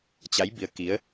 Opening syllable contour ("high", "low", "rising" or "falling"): rising